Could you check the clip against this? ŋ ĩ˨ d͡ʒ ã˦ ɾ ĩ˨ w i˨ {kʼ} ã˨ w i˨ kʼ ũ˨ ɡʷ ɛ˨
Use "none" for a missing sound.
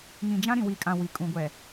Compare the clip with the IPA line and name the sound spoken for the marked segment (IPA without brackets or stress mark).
kʼ